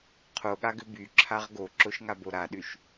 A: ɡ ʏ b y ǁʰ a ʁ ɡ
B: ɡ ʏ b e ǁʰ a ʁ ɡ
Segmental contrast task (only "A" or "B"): A